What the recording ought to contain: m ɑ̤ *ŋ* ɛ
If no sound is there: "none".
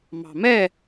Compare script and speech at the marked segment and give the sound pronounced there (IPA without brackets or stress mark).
m